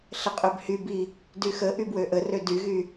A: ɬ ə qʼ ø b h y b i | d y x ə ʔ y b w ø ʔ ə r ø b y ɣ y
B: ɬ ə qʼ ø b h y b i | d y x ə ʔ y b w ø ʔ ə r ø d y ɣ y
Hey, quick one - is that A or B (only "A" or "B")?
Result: B